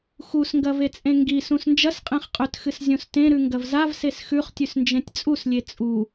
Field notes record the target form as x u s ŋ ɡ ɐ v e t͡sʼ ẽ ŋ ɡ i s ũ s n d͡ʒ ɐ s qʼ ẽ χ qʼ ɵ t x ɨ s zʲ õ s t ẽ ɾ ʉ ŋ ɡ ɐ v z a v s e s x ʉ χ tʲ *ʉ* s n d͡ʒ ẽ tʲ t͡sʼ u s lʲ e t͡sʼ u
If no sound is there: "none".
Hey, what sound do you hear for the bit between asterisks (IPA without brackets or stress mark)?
ʉ